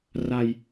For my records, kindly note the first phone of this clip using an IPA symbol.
r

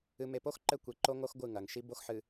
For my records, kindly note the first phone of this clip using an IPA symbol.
ɨ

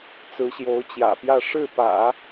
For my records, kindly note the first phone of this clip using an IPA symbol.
t͡s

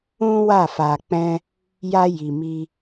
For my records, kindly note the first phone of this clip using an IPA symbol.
ũ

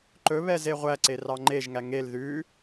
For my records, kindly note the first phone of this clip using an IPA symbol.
ǃ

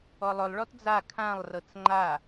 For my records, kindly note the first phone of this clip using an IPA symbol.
ɔ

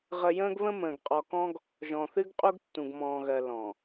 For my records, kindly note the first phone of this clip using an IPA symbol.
ʁ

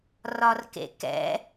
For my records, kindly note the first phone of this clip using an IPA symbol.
r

